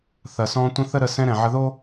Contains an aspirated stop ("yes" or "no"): no